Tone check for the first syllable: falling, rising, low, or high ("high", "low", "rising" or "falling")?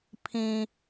low